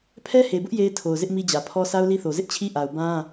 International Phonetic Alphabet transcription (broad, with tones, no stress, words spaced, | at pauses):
pʰɛ˦he˨bʊ˦ʔ je˦ɪ̯tʰo˨ʊ̯zɪ˦ʔ mi˦d͡ʑä˨pʰɔ˦ sʰa˦ʊ̯li˦θo˨ zɪ˦ʔt͡ɕʰi˦ ʔa˨ʊ̯ bã˦